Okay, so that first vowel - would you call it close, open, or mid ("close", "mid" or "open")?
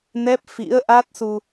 mid